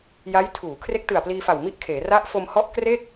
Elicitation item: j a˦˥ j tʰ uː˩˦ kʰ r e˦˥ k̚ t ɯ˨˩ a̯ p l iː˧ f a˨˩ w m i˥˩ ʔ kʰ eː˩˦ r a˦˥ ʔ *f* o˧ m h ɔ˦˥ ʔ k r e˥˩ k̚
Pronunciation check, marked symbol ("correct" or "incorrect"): correct